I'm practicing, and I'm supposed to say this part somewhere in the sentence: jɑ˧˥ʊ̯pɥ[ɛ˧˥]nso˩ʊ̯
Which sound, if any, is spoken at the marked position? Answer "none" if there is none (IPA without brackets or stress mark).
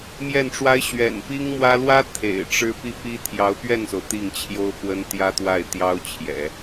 ɛ˥˩